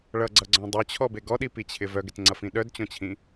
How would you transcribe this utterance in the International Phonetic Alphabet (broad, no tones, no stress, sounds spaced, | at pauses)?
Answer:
ɭ ʌ ɡ͡ǀ ʌ ɡ͡ǀ ɔ̃ dˤ œ t͡ɕʰ ɔ b e ɡ ɔ ɗ i p i t͡ɕʰ ɪ v œ ɡ ɪ t ŋ͡ǀ ʌ f ĩ ɗ œ d t͡ɕ ɔ̃ t͡ɕʰ ĩ